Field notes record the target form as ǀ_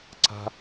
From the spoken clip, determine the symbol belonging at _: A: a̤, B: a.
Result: A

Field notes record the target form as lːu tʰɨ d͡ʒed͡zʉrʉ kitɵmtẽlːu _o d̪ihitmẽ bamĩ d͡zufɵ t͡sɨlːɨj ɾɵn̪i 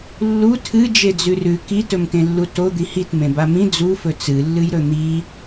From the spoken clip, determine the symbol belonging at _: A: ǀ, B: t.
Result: B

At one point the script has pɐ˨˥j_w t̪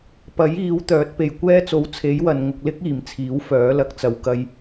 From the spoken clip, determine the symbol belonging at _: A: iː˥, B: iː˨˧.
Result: B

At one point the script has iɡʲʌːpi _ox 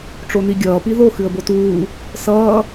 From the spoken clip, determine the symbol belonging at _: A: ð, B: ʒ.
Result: A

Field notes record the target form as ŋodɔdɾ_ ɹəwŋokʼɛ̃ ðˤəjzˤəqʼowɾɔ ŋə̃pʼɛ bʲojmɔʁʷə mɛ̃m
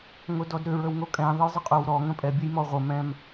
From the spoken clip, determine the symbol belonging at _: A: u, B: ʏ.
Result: B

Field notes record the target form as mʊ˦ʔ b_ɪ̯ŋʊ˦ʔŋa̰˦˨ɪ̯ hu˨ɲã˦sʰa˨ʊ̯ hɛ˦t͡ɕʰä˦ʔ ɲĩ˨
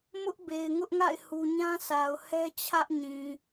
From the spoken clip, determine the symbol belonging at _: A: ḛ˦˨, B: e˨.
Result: B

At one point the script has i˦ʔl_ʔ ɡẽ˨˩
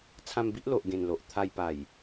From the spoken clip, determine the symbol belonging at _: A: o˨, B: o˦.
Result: A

